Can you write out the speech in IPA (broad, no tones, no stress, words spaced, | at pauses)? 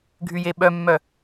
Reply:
ɡʱyjeɓœmːœ